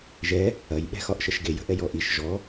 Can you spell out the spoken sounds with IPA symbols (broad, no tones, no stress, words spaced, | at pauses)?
ʒɛ | ɐj ɓɛ̤xɒʔʃəʃɡe jə̤ʔɛjɔʔiʃ ʒɔ